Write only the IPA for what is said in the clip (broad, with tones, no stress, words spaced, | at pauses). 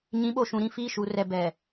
ɲĩ˨˦ɓo˨ʃũ˨ ɾĩ˦˨fiː˦˨ ʃu˨rɛ˨ bɛ˨